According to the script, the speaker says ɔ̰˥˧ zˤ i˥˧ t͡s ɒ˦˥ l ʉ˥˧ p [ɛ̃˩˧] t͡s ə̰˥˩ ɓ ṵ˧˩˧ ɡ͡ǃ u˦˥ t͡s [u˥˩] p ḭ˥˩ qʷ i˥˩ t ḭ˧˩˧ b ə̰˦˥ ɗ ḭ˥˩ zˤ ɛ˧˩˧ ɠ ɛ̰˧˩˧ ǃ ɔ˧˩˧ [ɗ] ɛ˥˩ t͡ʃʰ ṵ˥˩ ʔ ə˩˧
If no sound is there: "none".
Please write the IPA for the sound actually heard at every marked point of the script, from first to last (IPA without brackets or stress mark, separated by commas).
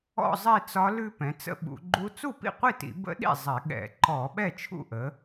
ɛ̃˩˧, u˥˩, ɓ